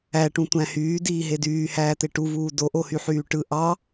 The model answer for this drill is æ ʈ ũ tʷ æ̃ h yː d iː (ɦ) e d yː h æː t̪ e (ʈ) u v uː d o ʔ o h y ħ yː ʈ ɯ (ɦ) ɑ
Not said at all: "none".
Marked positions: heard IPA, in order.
ɦ, ʈ, ʔ

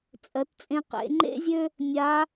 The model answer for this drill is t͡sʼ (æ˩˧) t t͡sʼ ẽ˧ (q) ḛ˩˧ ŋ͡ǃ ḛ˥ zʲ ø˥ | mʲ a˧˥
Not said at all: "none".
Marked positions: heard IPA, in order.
ɜ˩˧, q

